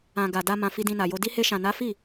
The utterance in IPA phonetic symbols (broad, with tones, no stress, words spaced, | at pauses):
ã˨ɡa˨ da˧ mã˨ fi˧dĩ˧na˨jo˧ di˧he˧ʃã˨ na˨˦fi˦˨